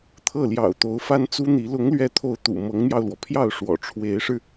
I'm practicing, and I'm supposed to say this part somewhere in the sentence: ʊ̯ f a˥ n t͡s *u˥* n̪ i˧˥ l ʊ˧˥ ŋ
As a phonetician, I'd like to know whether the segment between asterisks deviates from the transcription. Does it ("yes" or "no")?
no